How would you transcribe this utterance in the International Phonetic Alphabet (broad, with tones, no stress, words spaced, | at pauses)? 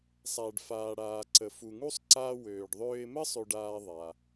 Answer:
sˤa˩ɖ faː˩ɽaː˩ǀə˩f u˩ŋu˥sˤ ǀaː˧ wøː˩ɖðˤøː˧ɪ̯mə˥ sˤø˧ɖaː˧ ðˤa˩